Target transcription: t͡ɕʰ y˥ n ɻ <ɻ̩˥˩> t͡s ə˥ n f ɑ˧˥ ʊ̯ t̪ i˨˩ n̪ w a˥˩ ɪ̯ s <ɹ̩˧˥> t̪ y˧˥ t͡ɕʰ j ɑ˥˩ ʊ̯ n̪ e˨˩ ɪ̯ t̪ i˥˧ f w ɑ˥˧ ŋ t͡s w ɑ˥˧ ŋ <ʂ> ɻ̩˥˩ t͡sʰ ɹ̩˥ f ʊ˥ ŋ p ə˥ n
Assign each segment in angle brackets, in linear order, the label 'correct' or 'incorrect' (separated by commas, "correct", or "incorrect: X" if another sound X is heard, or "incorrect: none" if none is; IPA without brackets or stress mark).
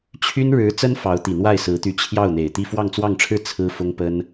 incorrect: ɻ̩˧˥, correct, incorrect: ʈ͡ʂʰ